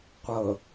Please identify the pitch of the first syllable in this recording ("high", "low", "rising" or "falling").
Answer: low